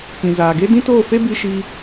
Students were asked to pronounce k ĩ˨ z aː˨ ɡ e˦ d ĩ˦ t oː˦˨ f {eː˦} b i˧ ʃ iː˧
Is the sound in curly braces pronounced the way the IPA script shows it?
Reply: no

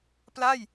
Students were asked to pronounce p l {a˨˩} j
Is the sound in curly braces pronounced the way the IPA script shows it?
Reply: no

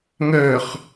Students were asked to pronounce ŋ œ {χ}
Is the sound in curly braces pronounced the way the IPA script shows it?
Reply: yes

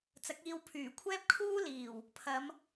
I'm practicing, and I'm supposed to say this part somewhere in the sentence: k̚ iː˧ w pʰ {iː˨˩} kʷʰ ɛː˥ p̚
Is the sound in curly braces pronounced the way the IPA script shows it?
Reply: no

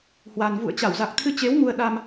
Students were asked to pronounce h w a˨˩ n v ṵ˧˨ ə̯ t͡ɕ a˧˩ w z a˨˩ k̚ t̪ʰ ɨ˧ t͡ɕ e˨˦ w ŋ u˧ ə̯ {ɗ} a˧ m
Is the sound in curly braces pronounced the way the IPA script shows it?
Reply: yes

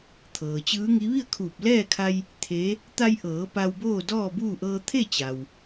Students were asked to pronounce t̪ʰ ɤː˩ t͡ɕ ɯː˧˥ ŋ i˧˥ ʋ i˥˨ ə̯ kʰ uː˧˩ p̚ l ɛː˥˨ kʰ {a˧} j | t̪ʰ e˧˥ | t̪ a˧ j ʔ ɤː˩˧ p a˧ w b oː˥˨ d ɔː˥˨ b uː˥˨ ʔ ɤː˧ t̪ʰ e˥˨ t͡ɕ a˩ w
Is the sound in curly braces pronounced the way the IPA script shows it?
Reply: yes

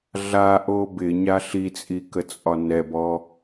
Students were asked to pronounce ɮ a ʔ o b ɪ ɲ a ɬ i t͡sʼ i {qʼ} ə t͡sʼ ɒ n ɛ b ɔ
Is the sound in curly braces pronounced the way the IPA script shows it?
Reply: no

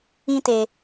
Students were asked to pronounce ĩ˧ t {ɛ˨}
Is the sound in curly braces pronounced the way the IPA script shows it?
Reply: no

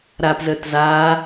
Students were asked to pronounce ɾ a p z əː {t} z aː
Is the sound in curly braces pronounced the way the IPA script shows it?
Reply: yes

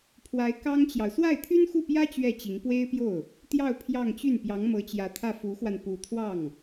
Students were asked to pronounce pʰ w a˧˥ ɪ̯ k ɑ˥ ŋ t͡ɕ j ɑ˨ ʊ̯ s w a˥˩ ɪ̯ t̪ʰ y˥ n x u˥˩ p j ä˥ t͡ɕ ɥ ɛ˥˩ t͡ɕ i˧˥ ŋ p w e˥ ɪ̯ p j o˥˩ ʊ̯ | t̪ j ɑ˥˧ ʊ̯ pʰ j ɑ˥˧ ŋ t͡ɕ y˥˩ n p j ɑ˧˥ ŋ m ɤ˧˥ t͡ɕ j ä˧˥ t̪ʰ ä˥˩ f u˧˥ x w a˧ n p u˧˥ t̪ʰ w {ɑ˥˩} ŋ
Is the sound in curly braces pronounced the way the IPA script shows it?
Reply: yes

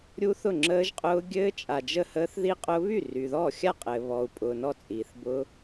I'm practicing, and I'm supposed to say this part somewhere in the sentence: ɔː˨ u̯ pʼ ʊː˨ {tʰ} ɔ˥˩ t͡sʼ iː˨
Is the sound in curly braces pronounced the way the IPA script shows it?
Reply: no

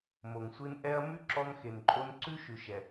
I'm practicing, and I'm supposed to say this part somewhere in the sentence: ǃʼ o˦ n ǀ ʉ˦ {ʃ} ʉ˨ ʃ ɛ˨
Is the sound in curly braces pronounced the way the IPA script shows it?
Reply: yes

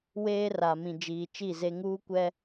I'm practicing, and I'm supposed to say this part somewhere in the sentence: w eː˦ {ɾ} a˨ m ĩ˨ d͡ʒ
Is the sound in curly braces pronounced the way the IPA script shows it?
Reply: no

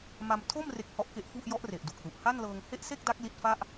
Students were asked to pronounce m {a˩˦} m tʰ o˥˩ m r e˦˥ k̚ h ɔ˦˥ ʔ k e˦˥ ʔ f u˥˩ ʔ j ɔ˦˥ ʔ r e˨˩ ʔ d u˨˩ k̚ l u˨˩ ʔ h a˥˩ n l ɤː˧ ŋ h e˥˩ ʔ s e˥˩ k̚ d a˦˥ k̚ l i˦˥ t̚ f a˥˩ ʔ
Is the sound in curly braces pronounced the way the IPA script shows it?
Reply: no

